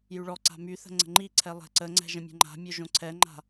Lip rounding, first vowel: rounded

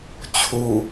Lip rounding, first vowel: rounded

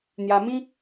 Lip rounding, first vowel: unrounded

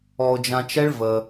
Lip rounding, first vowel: rounded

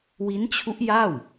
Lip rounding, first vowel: unrounded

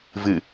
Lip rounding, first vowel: unrounded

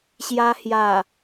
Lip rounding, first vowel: unrounded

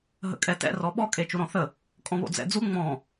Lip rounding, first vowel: unrounded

